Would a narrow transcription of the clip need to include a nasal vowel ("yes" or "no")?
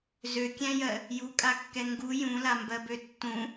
yes